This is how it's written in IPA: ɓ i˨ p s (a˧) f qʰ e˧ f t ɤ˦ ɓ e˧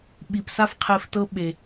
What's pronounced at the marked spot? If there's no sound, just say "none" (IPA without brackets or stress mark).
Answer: a˧